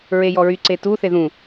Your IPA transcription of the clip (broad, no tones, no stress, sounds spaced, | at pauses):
ɹ e j ɔ ɹ y ǀ e t u θ e ð ũ